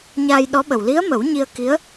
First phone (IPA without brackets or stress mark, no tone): ɲ